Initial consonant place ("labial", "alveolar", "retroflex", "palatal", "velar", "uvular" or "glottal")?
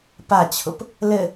labial